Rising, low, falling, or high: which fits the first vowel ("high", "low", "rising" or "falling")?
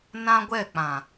high